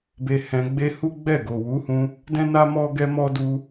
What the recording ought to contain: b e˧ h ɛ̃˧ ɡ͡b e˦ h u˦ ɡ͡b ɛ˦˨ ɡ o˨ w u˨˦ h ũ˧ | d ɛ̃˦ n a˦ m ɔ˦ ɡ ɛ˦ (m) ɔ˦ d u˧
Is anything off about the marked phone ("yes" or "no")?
no